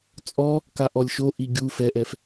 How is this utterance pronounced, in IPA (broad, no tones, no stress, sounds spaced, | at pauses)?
t͡sʼ ɔ | k a ʔ ɔ lʲ ʃ o ʔ i ɡʲ u f ɛ ʔ ɛ f